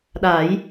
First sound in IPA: ɗ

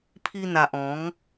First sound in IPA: pʰ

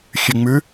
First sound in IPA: xʲ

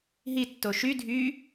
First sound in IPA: ɦ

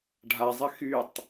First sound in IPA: ɖʱ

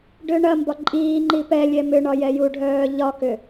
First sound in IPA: ɖ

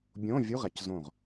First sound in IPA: bʲ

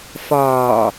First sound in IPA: f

